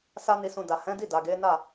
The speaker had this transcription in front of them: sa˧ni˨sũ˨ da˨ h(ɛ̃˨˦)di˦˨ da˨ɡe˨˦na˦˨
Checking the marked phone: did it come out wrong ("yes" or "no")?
no